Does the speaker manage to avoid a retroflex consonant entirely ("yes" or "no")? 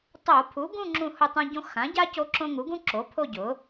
yes